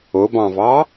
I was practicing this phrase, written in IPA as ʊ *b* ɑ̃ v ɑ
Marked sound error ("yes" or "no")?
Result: no